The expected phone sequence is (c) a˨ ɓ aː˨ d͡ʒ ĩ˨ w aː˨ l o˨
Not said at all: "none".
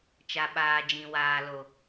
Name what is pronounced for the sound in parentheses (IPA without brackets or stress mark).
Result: t͡ʃ